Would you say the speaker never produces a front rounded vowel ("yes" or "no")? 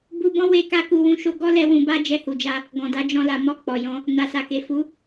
yes